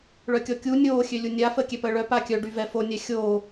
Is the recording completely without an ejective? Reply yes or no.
yes